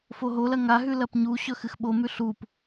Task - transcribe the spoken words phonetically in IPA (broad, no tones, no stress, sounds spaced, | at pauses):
f o ɦ o l ɐ ŋ a ɦ ʉ l ɐ p ɲ u ɕ ɵ x ɨ x ɓ o m ʉ ɬ u p